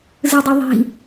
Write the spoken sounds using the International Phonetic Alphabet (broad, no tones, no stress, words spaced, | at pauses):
zɯdˤuðˤi̤